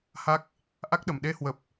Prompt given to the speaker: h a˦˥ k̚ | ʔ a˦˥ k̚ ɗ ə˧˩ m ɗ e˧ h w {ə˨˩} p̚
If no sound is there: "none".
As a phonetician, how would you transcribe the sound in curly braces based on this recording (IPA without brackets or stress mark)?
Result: ə˨˩